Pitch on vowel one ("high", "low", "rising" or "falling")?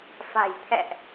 low